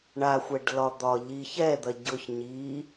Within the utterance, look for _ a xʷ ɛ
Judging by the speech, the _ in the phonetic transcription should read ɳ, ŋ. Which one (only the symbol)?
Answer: ɳ